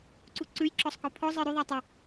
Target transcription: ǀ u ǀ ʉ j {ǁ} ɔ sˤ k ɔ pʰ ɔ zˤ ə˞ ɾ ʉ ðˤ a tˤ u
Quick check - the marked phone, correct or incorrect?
correct